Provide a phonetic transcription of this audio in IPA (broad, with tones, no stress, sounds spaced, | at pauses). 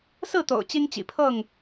s ɹ̩˥˨ t̪ o̰˨˩ ʊ̯ t͡ɕ i˦ ŋ t͡ɕ ḭ˨˩ pʰ ɤ˥˨ ŋ